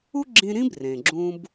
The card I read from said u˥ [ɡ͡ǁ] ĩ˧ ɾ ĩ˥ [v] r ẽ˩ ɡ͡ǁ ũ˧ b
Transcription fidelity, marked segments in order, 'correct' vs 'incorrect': correct, incorrect

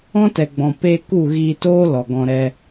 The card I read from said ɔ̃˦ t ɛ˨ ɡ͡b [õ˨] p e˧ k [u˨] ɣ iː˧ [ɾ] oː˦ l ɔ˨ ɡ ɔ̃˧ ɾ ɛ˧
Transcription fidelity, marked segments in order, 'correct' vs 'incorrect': incorrect, incorrect, incorrect

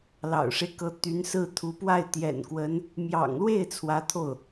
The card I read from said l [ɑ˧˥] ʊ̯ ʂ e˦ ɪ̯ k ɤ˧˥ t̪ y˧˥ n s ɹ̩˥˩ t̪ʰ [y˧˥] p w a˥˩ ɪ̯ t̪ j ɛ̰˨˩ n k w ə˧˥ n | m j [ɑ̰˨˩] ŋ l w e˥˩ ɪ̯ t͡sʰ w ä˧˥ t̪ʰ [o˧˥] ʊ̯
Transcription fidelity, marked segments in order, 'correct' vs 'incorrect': incorrect, incorrect, correct, incorrect

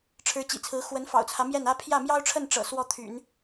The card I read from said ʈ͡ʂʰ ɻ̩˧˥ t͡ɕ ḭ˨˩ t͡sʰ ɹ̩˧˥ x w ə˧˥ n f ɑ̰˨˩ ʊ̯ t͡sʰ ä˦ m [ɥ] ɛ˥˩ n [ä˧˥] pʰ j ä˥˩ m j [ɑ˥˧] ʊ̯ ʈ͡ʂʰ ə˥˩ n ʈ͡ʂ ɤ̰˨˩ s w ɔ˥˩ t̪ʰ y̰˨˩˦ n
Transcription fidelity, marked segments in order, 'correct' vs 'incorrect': incorrect, incorrect, incorrect

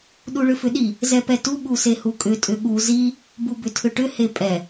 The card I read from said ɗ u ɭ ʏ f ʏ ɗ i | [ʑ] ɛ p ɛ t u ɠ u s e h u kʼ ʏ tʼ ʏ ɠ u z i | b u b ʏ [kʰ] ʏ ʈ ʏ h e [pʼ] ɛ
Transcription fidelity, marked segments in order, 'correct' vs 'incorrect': incorrect, incorrect, correct

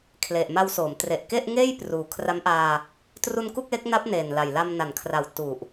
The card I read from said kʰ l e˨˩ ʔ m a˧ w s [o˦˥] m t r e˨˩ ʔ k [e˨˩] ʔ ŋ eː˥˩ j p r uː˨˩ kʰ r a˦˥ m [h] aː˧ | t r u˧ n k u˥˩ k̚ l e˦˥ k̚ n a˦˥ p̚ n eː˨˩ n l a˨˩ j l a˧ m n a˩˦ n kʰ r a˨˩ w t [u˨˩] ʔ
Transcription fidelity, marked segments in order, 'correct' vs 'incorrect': incorrect, incorrect, incorrect, correct

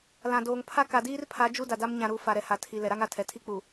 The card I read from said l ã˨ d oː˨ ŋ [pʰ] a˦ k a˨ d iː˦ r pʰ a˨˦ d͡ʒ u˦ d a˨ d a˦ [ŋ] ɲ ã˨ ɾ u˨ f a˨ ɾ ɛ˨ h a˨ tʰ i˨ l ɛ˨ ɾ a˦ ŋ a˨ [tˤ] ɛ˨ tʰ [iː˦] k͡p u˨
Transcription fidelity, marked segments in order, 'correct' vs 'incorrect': correct, incorrect, incorrect, incorrect

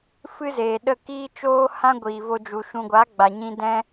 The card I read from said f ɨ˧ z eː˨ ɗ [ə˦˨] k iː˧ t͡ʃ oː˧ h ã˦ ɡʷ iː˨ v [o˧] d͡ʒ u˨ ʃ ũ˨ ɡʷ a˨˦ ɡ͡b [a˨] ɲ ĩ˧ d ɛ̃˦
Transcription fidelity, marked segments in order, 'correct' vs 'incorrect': correct, correct, correct

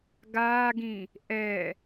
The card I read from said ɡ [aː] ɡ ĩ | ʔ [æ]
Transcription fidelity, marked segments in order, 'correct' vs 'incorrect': correct, incorrect

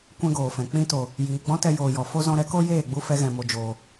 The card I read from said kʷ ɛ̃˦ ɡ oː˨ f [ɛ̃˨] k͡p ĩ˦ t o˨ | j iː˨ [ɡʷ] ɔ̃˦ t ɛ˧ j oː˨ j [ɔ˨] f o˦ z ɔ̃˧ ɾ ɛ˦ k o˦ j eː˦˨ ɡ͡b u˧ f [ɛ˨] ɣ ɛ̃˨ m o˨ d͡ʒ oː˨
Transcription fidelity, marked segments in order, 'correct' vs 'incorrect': correct, incorrect, correct, incorrect

